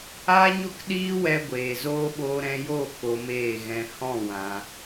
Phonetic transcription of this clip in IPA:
aː˦ɲo˦kɗiː˦wɛ˧ ɡʷeː˨zoː˦ ɓoː˧ɾɛ̃˧joː˦˨ ko˧meː˦˨ɣɛ̃˧ hɔ̃˦˨ wã˧

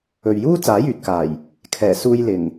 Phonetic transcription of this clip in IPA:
ɵ˨ɥjuː˥ t͡saː˨˥jyː˨t̚kaː˨˩j | kʰɛː˨˩suː˧jlɪ˨˩ŋ

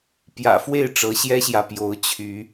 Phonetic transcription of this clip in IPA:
pjä̰˨˩fwe˥˨ɪ̯ ʈ͡ʂɤ˨˦ɕjɛ˦ɕjä˨ pjo˨˦ʊ̯t͡ɕʰy˨˦

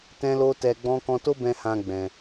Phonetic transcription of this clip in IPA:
tɛ̃˦lo˦tɛ˧ɡ͡bɔ̃˦ kɔ̃˧to˦bɛ̃˧ hã˧ɡ͡bɛ̃˨

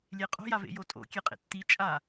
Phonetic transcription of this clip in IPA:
lʲeqʼo̤ javḛjotʼo̰ kʲeqʼḛtːi t͡ʃʼa

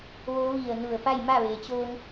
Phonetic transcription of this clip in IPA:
ʋo˧˥ʋi˧˩ə̯ nu˧˩ə̯ pa˥˨jma˥˨ʋeː˩t͡ɕoː˧ŋ

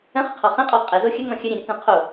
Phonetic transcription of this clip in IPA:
ə̃χə qʰɔχɛ̃qʼɔ qʼɛzo xʲəŋɔ̃ xʲəɾʲɛ̃ ɾʲətɛ̃ qʰo

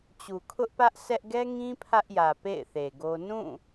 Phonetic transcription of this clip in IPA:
t͡ɕu˨kʰʊ˦ʔ pä˦ʔsʰɛ˦ʔ ɡɛ˦ŋĩ˦ pʰä˦ʔjä˨ pḛ˦˨ɪ̯θe˨ɡo˦ nũ˦˨

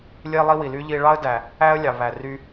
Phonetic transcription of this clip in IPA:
lʲe˧lˠi˧wi˩ly˧ ʎi˧ɭɑ˥ə̯ dæ˩ | æ˥ə̯lʲɑ˩ βæ˩ry˧

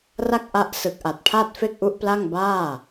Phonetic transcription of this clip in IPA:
ra˥˩k̚ʔa˦˥ʔ sɯ˨˩k̚ʔa˨˩t̚pʰa˥˩t̚ fe˥˩k̚ʔu˦˥ʔpla˥˩ŋ baː˥˩

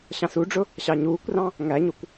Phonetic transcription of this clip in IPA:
ɕɑ̃suɖ͡ʐʊ | ɕɑɲuːkʷrɑ̃ | ŋæɲukʷ

